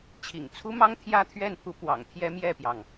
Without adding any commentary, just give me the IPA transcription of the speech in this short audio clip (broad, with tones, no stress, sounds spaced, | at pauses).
t͡ɕʰ ḭ˨˩ ŋ t͡sʰ u˥ m ɑ˥ ŋ t̪ʰ j ä˥ t̪ʰ ɥ ɛ˥˩ n pʰ u˧˥ p w ɑ̰˨˩ ŋ t̪ʰ j ɛ˥ m j ɛ˥˩ p j ɑ˩ ŋ